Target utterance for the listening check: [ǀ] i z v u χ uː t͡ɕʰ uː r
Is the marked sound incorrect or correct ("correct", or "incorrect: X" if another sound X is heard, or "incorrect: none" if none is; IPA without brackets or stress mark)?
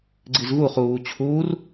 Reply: incorrect: ɡ͡ǀ